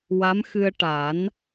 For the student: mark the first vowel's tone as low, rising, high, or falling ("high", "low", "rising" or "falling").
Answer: rising